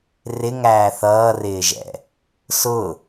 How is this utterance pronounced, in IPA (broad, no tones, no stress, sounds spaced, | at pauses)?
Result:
r ɪ ŋ æː θ ʌː r ɪː ʒ ɛ̰ | s ʊ